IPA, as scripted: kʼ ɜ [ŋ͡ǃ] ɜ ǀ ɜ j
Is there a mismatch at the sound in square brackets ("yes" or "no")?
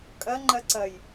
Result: no